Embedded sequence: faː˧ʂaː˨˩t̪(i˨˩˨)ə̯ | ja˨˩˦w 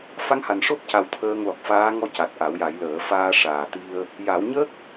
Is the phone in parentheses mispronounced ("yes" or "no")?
yes